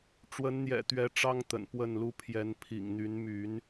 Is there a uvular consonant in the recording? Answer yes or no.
no